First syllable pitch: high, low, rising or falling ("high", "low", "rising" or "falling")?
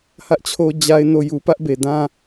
high